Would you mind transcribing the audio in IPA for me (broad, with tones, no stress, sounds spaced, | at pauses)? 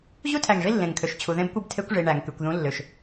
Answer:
ʑ u˦ tʰ æ˨ ŋ ʐ i˦ lː ẽ˨ ŋ kʰ ø˨ ʃ t͡ɕʰ u˨ ð ẽ˦ b kʷ ɯ˦ b tʰ e˦ kʷ ʐ i˨ ɳ æ˨ ŋ k y˨ kʷ ð ũ˦ lː ø˨ ʃ